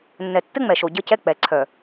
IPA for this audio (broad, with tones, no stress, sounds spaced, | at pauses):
nː ɛ˨ tː ɘ˦ ŋ͡m ɛ˨ ʃ o˨ ɟ ə˦ c ɛ˦ k͡p ɛ˨ ǀʰ œ˨